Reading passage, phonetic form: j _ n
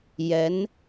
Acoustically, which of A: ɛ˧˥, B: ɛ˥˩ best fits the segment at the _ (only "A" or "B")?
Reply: A